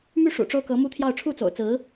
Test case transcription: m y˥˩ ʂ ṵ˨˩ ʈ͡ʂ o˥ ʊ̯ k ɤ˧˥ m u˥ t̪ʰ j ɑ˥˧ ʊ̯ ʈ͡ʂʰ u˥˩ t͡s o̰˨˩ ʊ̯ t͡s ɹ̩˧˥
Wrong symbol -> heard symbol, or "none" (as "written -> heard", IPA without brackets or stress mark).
none